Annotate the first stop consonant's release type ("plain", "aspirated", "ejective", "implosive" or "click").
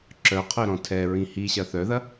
click